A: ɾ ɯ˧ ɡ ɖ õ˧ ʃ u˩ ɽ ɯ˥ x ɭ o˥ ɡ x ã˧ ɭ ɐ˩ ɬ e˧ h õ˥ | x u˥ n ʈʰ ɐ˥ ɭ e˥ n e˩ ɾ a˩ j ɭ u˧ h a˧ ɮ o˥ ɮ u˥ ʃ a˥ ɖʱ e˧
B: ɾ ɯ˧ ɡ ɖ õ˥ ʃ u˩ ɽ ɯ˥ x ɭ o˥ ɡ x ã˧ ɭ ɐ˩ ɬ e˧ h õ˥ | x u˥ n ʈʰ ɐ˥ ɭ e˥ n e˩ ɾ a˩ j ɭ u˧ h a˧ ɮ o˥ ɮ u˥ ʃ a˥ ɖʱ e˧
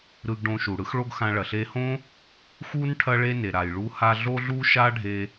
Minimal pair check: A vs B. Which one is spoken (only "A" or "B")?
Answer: A